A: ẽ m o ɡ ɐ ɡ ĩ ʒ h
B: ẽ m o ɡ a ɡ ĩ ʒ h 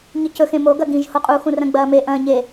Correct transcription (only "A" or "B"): A